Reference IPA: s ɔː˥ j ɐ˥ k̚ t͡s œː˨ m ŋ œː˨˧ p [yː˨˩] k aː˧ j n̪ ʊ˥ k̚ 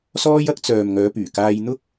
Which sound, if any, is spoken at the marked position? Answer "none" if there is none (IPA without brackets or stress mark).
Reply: yː˨˩